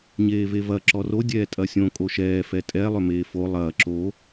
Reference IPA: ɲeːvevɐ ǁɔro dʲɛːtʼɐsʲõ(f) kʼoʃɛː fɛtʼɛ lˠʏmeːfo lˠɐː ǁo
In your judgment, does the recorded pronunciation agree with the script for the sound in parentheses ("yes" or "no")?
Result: no